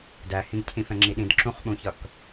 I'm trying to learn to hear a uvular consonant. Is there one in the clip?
yes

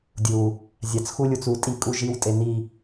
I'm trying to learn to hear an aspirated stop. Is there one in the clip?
no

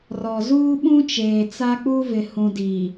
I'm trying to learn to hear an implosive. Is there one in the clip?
yes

